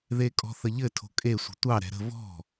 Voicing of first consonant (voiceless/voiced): voiced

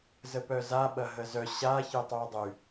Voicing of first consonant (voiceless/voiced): voiced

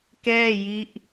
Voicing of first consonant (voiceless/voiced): voiceless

